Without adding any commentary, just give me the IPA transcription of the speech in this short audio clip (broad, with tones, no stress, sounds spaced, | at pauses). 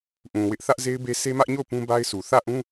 ʔ ũ˨ w ɪ˦ ʔ θ ä˦ ʔ z e˦ ɪ̯ b e˦ s e˦ m ä˦ ʔ ɲ o˦˨ ʊ̯ p ũ˦ b a˦ ɪ̯ s u˨ θ ä˦˨ ʔ ũ˦